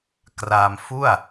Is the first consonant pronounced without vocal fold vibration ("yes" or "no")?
yes